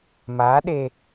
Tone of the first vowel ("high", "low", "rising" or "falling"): rising